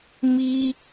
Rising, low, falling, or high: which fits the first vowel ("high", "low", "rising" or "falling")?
high